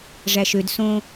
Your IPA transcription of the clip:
ʐæʃød sõ

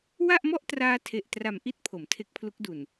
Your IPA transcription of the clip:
wa˥˩ʔmɔ˥˩ʔtraː˧ tʰe˨˩ʔtra˨˩mʔi˥˩t̚ pʰo˩˦mtʰe˦˥k̚pʰlu˦˥k̚du˨˩n

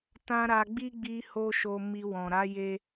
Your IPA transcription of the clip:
tã˦ ɾa˧ɡ͡bi˦ɡ͡bi˧ ho˦ʃo˧mi˧ wɔ̃˨ɾa˨˦je˧

